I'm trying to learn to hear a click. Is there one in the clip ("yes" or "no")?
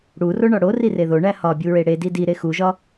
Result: no